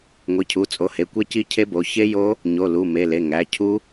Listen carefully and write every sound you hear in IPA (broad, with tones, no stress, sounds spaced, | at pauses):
ŋʷ i˩˧˩ cʰ u˩˧˩ t͡sʼ o˩˧˩ h e˩˧˩ kʷ e˦˥ c i˦˥ cʰ e˦˥ b o˩˧˩ ç e˦˥ j o˦˥ | ɲ o˩˧˩ l u˩˧˩ m e˩˧˩ l e˩˧˩ ŋ æ˩˧˩ cʰ u˦˥